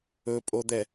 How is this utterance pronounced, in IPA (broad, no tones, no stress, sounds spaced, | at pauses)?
ɵ pʼ o d̪ ɛ